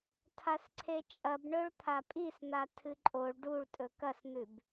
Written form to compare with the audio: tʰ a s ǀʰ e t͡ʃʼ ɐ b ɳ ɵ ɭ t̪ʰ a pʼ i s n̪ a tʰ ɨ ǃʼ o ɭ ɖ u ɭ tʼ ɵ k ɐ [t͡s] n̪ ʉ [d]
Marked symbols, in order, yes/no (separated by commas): no, no